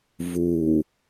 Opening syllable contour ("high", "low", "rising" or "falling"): low